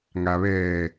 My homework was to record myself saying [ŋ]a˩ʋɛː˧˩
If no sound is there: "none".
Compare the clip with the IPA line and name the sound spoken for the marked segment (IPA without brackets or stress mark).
ŋ